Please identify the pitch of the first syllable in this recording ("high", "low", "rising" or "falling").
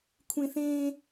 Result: high